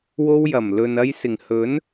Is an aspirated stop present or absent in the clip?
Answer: absent